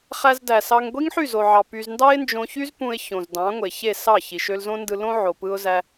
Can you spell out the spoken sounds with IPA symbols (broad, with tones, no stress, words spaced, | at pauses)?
χæ˧zdæ˨sɑ˧ŋ ɡʷi˦ŋħy˦˨zo˨ʕɑ˨ py˧z ndɑ˦ɪ̯nd͡ʒõ˧çy˦zpũ˧ɪ̯ çõ˨zdɑ̃˨˦ŋʷe˨çe˦˨ sɑ˦˨ çi˨ʃ ø˧lzõ˦ndɯ˧lõ˦ ʕo˨pɯ˧ʊ̯zæ˧